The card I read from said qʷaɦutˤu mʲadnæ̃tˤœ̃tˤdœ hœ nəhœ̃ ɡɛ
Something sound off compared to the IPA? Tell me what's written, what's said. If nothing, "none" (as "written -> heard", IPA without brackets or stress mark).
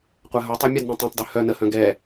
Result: æ̃ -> œ̃